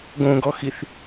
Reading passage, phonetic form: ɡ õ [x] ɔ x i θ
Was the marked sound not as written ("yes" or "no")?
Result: yes